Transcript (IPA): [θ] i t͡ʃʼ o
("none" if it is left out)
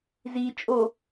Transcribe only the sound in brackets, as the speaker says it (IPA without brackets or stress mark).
z